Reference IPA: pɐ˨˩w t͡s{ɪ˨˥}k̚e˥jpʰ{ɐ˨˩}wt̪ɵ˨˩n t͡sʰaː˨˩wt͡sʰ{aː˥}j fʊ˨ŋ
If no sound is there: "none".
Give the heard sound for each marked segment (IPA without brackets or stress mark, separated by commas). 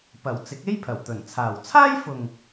ɪ˨˥, ɐ˨˩, aː˥